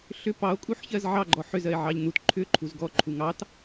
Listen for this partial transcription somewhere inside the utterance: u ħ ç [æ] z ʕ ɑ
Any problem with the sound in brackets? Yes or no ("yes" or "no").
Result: yes